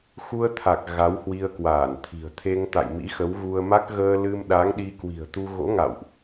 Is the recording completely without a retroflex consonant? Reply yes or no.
yes